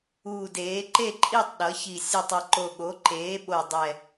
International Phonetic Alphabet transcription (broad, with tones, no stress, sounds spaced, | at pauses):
uː˨˩ d eː˩˧ ǃ e˦˨ ǃʼ i˦˨ tˤ ɗ ʌ˩˧ ç i˨˩ sʲ u˨˩ tˤ ʌ˨˩ ǃ o˨˩ ɠ o˩˧ ǃ eː˩˧ ɓ o˨˩ dˤ ɛ˨˩